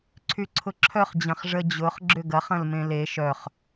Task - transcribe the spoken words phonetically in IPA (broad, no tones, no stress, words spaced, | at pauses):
ǀʰyǀʰʊǁʰœχ d͡ʑɐ̃χʐə d͡ʑʊχ ɡ͡ǁʏɡɐχ ɐ̃lmẽle ʃœχ